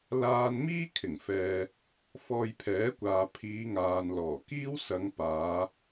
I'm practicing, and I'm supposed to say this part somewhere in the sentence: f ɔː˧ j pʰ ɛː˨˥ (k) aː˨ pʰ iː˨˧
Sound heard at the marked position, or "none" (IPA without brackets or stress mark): kʷ